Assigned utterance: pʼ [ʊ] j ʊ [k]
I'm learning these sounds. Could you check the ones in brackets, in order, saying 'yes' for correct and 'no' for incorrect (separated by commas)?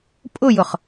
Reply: yes, no